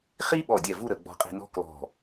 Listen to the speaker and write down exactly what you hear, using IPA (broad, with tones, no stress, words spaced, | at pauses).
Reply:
χi˥ ɓɔ˧˩dʲɛ˧˩ vu˥˧ɾə˩˧ ɡ͡bɔ̤˧qʼi̤˧nɔ̤˥ klɔ̤˧˩